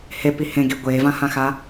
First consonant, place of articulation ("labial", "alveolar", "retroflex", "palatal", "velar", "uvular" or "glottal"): glottal